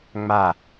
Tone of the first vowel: falling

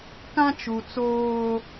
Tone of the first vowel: high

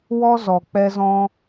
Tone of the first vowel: high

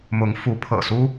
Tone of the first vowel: rising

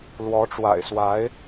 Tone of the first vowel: rising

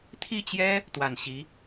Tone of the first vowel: falling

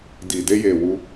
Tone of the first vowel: low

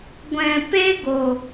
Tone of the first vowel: low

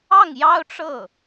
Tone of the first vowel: falling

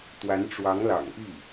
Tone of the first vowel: rising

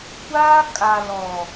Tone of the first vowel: high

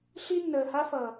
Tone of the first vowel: high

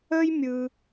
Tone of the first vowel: high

